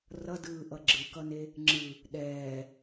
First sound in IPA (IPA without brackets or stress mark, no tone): r